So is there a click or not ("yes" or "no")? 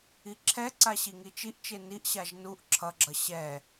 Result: yes